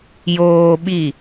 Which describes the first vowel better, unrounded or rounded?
rounded